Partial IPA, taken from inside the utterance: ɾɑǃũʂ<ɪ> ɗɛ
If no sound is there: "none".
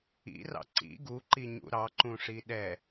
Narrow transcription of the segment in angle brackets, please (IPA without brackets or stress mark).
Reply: i